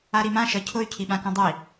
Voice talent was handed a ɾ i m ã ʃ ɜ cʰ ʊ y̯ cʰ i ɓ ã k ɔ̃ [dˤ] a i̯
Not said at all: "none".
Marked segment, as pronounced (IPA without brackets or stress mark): dˤ